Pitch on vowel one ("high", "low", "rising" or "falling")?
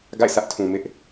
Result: falling